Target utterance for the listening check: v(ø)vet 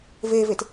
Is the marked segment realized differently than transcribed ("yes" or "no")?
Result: yes